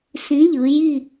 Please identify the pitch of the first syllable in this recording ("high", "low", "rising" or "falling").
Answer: rising